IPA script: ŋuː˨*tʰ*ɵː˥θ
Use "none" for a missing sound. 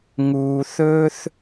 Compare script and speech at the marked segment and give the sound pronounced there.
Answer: θ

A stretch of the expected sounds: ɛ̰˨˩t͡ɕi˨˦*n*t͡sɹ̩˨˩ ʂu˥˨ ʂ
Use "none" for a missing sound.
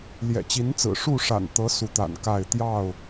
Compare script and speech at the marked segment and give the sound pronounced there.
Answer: n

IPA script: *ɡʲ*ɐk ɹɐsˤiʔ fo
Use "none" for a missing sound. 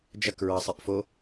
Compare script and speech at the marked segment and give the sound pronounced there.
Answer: d͡ʒ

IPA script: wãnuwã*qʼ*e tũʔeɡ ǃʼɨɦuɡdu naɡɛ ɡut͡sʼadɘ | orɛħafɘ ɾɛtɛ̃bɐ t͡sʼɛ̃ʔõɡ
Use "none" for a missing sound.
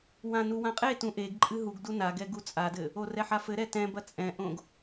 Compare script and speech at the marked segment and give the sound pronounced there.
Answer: qʼ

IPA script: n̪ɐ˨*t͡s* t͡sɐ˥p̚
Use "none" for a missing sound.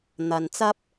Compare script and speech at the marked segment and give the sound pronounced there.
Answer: n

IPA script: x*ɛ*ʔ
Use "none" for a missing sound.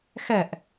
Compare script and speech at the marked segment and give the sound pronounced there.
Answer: ɛ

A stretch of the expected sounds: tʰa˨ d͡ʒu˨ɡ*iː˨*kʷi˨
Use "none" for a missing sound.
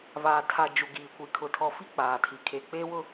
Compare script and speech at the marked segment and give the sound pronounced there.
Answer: iː˨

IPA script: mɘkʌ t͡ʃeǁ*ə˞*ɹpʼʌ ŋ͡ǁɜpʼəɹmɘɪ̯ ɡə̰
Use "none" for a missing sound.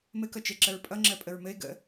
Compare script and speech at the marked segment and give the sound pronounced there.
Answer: ə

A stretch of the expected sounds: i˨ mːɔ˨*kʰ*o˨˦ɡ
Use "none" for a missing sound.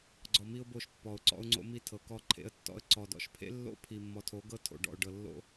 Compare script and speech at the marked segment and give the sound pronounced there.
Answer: tʰ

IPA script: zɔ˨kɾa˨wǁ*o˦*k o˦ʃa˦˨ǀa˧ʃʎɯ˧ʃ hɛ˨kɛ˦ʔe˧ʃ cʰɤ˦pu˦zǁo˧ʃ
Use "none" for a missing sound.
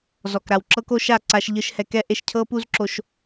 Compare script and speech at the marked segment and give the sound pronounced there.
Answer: ɤ˦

